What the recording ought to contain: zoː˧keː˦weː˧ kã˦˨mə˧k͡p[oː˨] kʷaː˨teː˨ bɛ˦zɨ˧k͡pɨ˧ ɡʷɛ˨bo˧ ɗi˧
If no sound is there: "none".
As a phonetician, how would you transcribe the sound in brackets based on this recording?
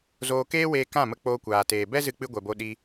oː˧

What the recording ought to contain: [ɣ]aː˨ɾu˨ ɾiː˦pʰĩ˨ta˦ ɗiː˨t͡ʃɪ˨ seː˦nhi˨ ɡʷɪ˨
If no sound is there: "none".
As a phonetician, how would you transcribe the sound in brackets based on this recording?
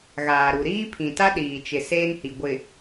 ɣ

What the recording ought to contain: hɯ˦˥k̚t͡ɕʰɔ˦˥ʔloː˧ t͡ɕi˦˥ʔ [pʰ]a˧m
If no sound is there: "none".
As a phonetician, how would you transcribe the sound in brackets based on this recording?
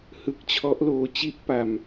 p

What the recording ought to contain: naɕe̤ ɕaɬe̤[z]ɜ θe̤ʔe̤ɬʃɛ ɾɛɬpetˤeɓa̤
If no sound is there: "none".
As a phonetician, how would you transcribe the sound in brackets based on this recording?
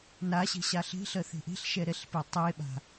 ɬ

